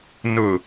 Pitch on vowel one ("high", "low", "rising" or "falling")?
low